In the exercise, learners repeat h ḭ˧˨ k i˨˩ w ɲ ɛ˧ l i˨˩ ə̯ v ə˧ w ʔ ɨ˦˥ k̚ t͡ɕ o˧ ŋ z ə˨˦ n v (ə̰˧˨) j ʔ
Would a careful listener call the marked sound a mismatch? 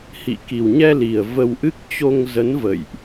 no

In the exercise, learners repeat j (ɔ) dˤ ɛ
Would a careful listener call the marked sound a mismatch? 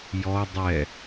no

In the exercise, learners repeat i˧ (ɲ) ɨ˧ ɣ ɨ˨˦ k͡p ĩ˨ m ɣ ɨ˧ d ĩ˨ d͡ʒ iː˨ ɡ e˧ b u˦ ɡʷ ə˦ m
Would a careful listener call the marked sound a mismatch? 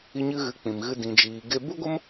no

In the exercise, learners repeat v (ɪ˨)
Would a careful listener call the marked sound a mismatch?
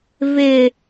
no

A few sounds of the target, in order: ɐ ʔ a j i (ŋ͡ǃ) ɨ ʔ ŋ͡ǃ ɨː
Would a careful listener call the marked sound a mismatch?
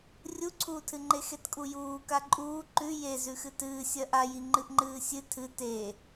no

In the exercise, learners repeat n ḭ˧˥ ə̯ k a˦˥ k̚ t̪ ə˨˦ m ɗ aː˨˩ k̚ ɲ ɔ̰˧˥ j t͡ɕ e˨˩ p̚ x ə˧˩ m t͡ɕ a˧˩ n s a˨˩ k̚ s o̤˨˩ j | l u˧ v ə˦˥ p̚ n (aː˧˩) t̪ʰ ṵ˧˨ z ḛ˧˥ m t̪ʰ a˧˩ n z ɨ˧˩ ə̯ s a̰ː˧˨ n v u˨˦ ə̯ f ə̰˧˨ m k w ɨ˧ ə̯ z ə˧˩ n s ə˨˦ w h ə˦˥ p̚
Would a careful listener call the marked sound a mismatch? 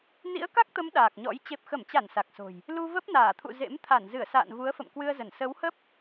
no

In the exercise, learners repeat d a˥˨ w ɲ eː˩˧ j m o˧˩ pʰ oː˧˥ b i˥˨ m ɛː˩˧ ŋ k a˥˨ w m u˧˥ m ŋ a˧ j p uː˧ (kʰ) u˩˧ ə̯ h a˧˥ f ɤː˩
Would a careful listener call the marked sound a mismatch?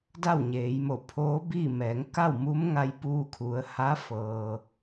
no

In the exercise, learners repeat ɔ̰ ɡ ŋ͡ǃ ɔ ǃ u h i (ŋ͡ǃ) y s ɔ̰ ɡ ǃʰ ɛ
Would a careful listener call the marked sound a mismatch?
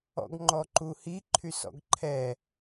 yes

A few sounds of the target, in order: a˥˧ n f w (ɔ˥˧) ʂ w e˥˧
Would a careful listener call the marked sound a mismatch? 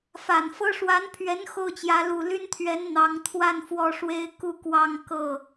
no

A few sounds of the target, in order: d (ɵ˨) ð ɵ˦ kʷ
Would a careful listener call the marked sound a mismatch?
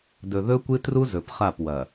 no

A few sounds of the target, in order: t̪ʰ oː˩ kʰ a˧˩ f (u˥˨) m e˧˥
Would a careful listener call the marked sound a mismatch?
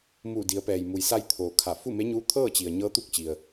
no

